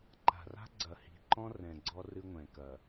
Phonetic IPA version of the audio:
ǃ a̤˨ r a̤˦ ɡ͡ǀ ɐ˨ h i̤˨ ǃ ɔ̃˦ r ɛ̃˨ ɡ͡ǀ ɔ˦ r ɨ˦ ŋʷ ɛ̃˨ k ɐ˨

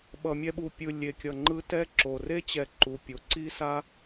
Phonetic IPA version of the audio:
ɓ ʌ˨ mʲ ɛ˦ ɓ u˨ pʲ ɯ˨ lʲ e˨ kʲ ʌ˨ ŋ͡ǃ ɯ˦ t ɛ˥ ǁ o˩ r e˥ t͡ɕ ɛ˨ ǃ u˩ pʲ o˩ ǀ i˥ s a˥

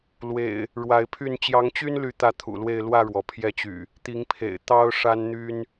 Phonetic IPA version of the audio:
l w ḛ˨˩ ɪ̯ | ɻ w a˨˦ ɪ̯ pʰ y˥˨ n t͡ɕ j ɑ˨˦ ŋ t͡ɕ y˦ n l y˨˦ t̪ ä˥˨ t̪ʰ ṵ˨˩ l w e˥˨ ɪ̯ l w ä˥˨ ɻ w ɔ˩ pʰ j ɛ˦ t͡ɕ y̰˨˩ | t̪ i˨˦ ŋ pʰ ḛ˨˩ ɪ̯ t̪ ɑ˦ ʊ̯ ʂ a˦ n n̪ y˦ n

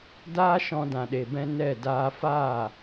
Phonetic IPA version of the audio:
d aː˦ ʃ ɔ̃˧ d ã˨ ɗ e˨ b ɛ̃˧ n ɛ˦˨ d aː˧ f aː˦˨

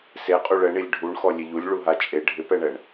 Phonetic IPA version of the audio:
s e qʼ u ɭ ɛ ɳ i lʲ ɖʱ u ɳ x ɔ lʲ e ʎ u lʲ ɭ u ɦ a t͡ʃʼ e ɖʱ ɪ p ɛ ɳ ɛ ɳ

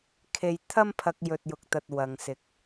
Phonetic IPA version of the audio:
kʰ e˨ j t̪ʰ ɐ˥ m pʰ ɐ˧ k̚ j ɵ˨ t̚ j ʊ˨ k̚ t̪ ɐ˨ t̚ w ɐ˨ ŋ s ɪ˨ k̚

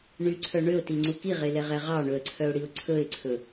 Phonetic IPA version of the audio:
ɳ y ǀʰ œ ɳ ø ʊ̯ t i ŋ͡ǀ u k i ʁ e l ɛ ʁ ɛ ʁ ɑ ɳ ɵ ə̯ ǀʰ œ ʊ̯ ɽ i ʊ̯ ǀʰ ɵ ɪ̯ ǀʰ ɵ

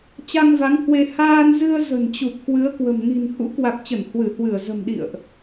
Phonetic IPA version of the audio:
t͡ɕ a˧ ŋ v a˨˦ ŋ h w e˧ h aː˧ n z ɨ˧ ə̯ z ə̤˨˩ n t͡ɕ u˨˩ p̚ k w ɨ˨˦ ə̯ k w ə̤˨˩ m n i̤˨˩ n h ṵ˧˥ k w a˨˩ k̚ t͡ɕ ə˧˩ n h w ɨ˧˩ h w ɨ˧˩ ə̯ z ə̤˨˩ m ɗ ḭ˧˨ ə̯ ʔ

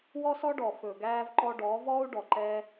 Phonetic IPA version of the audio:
w ɔ˦ s ɔ˦ ɖ ɔ˨ f ɵ˨ ɡ æː˧ v ǃ ɔ˧ ɖ ɔː˨˦ v ɔː˦ u̯ ɖ ɔ˨ ǃ ɛ˧

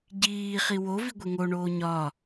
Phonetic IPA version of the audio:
ɟ iː χ i w o v i ɡʷ e ŋ o ɳ oː ɲ ɒ

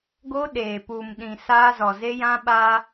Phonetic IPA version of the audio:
ɡ o˦ ɗ eː˨ p uː˨ m ɗ ĩ˨ s aː˦ z ɔ˨ z e˦ j ã˦ ɓ aː˦

